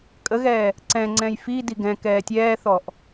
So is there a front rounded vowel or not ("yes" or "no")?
no